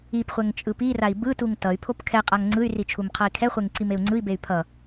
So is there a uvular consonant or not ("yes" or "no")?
yes